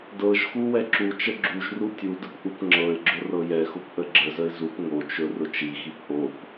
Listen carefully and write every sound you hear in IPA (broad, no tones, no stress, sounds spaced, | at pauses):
d ɤ ʒ x u w ɛ ǁ u t͡ʃ ə ɡ͡ǁ u ʒ r u tʲ u d ə p ʔ u p ŋ͡ǁ ɤ ɪ̯ ɡ͡ǁ ʊ r ɤ j ɛ x ʊ p ʔ ə ɡ͡ǁ ə z ə ɪ̯ z u p ŋ o t͡ʃ ɵ r ʊ t͡ʃ i x i p ʔ o p